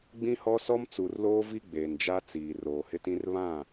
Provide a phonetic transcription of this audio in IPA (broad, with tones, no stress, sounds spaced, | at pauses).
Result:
ɡ͡b ĩ˦ h ɔ˦ s ɔ˦ m t͡s u˨ r l oː˦ v i˦ ɡ͡b eː˨ n d͡ʒ a˦ t͡s iː˨ r oː˨ h ɪ˦ t ĩ˦ r β ã˦˨